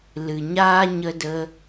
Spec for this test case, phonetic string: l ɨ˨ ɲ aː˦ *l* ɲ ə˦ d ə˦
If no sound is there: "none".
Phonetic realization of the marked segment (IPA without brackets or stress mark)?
none